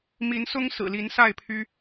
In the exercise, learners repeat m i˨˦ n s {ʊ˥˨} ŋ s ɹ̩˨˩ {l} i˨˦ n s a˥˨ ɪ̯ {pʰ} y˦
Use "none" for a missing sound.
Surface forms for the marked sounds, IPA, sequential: ʊ˦, l, pʰ

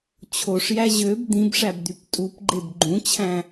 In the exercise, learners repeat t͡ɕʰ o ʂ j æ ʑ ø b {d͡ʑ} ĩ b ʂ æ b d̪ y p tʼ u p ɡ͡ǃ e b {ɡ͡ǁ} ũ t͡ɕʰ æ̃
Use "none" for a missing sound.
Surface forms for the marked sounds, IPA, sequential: d̪, ɡ͡ǃ

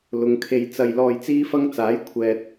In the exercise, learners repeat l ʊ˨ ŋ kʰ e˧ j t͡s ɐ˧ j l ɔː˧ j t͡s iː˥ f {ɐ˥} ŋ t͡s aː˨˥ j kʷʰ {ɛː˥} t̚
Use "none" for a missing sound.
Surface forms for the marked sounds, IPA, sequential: ɐ˥, ɛː˨

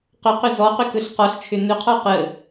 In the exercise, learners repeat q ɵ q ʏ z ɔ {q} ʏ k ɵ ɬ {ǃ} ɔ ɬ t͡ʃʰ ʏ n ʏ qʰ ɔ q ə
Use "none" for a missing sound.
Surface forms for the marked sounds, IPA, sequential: q, q

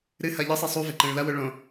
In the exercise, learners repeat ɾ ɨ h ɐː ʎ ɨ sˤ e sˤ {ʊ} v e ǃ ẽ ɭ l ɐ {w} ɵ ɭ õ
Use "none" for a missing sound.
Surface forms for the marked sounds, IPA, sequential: u, w

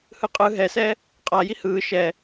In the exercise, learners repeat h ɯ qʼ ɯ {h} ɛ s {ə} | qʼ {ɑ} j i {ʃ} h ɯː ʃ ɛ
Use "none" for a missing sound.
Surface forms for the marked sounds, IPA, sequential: ɦ, ɛ, a, none

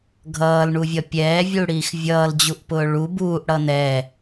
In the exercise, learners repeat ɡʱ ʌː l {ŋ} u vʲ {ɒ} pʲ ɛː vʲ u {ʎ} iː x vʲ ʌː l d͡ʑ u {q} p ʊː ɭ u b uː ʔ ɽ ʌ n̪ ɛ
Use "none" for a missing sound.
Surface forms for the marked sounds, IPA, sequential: ɳ, ʌ, ɽ, ʔ

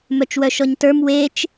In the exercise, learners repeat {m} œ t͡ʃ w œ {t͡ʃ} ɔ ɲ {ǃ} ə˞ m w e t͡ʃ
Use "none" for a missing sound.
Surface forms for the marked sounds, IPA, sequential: m, ʃ, t

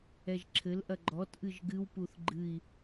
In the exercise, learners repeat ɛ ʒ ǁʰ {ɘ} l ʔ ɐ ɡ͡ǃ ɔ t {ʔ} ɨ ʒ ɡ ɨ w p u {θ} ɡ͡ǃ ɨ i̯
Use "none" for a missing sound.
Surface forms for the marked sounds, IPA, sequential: ɘ, ʔ, θ

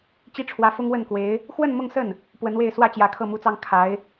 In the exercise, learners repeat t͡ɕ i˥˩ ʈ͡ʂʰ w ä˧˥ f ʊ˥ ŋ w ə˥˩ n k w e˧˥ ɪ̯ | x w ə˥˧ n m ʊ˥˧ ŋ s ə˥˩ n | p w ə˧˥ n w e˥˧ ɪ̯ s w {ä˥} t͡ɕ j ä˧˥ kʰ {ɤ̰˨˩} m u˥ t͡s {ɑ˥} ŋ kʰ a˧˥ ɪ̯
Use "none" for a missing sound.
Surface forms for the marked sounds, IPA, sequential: ä˥˩, ɤ˥˩, ɑ˥

